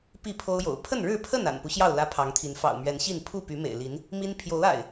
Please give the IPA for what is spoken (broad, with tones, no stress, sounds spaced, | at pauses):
p i˥˨ pʰ o˦ ʊ̯ j o̰˨˩ ʊ̯ pʰ ə˥˨ n ɻ ɻ̩˥˨ pʰ ə˥˨ n a̰˨˩ n p u˦ ɕ j ɑ˥˨ ʊ̯ l ä˦ pʰ ɑ˨˦ ŋ t̪ʰ i˨˦ n f ɑ̰˨˩ ʊ̯ m ɥ ɛ˨˦ n ɕ i˥˨ n pʰ u˥˨ p y˨˦ m ḛ˨˩ ɪ̯ l i˨˦ n | m i˦ n pʰ j o˨˦ ʊ̯ a̰˨˩ ɪ̯